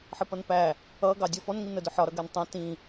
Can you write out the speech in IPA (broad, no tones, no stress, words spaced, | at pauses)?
ħəpʌnpæ | ʌɡɑ dʲɔfɔnŋin ədʊħɒ ɾʌɡɛntˤæ̃ tĩ